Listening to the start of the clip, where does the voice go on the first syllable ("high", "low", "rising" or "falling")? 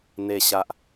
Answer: low